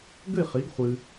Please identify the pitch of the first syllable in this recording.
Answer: falling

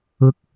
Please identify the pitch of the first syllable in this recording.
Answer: high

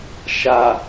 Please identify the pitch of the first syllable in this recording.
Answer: low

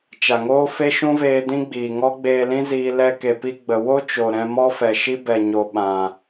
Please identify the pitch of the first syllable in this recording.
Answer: low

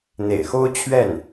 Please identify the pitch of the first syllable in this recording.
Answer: low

